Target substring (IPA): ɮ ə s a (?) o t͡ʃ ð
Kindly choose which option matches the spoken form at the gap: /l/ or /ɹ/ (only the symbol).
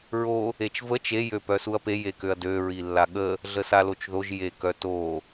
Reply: l